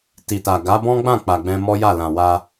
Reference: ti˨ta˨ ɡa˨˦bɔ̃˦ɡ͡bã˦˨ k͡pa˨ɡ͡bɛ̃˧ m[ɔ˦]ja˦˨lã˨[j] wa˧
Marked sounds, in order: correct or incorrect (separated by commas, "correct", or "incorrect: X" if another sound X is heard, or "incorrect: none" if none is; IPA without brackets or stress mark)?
correct, incorrect: none